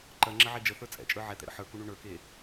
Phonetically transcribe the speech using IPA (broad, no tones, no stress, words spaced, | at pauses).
ǃɜ ŋ͡ǁəʕed͡ʒəθə˞ t͡sʼɛ̰t͡ʃʼə˞ ʕɛt̪ɛ̰ ɾə̰ħə˞kuɳu ɳə˞ke